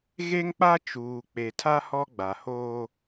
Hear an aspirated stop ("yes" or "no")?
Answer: yes